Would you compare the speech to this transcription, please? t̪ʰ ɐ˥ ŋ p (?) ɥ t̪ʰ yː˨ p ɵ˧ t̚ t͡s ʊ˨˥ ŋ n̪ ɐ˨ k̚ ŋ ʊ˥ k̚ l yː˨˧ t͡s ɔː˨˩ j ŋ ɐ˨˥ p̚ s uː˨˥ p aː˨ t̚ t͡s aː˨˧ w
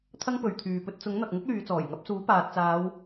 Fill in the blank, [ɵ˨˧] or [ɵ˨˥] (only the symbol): ɵ˨˧